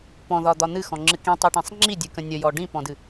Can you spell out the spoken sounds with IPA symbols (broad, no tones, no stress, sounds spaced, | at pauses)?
p ɔ̃ ð ɒ d̪ ɒ n̪ ɨ x ɔ̃ ŋ͡ǁ ɨ k ĩ tˤ i ʈ ĩ sˤ ŋ͡ǁ i dʲ ɨ k ə̃ nʲ ə j ɔ ɖ ĩ p ɔ̃ d ɨ